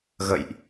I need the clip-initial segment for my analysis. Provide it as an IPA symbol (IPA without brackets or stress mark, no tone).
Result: ɣ